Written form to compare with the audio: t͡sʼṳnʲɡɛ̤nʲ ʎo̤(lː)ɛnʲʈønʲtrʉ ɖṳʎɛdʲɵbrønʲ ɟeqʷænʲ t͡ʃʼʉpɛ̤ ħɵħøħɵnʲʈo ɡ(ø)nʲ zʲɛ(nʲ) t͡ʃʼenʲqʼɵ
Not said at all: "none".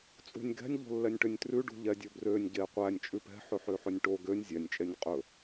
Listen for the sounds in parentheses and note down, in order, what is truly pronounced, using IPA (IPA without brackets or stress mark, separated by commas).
lː, ø, nʲ